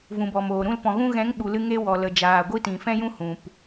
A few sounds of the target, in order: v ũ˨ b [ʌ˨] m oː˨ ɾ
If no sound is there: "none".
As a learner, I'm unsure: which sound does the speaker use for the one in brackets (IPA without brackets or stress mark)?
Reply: ɔ˨